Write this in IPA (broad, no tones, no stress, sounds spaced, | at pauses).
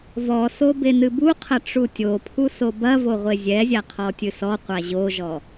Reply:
v ɔ s o b e n ɨ b u qʰ ɐ ʈ͡ʂ u tʲ o pʰ u s o b ɐ v o ʁʷ e zʲ ɛ zʲ a qʰ ɔ tʲ ɨ s ɔ qʷ a ʑ o ʒ ɔ